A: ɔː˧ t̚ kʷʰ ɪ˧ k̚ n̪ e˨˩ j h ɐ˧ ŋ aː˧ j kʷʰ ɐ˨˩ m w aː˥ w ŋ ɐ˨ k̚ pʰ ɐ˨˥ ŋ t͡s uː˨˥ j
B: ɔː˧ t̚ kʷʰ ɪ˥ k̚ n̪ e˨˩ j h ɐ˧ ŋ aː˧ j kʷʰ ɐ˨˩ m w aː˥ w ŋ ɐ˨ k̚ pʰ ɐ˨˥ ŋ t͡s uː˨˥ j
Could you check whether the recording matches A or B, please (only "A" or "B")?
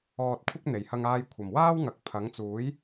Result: B